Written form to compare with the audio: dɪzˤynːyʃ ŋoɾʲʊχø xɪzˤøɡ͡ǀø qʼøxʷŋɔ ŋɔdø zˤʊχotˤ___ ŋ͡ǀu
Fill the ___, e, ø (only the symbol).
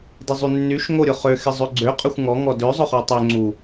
ø